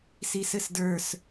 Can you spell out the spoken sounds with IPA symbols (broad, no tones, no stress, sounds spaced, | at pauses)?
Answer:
s i s ɘ s d ə˞ s